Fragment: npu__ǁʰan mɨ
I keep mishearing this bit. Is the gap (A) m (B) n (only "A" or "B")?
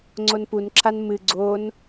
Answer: B